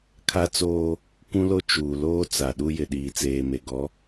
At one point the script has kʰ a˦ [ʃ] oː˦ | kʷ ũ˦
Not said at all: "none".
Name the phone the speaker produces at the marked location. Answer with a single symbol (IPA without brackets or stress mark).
t͡s